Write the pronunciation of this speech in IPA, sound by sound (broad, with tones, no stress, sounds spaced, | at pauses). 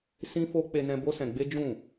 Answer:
s ĩ˦ f o˦ k͡p e˧ n ɛ̃˧ b o˦ s ɛ̃˧ ɡ͡b e˦ d͡ʒ ũ˦˨